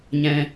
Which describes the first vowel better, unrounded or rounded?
unrounded